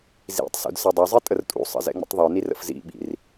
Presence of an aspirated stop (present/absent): absent